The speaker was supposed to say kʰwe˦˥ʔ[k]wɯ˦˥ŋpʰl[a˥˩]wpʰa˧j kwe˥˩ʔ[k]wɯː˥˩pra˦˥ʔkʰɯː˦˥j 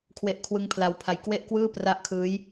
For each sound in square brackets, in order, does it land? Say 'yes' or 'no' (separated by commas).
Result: no, no, yes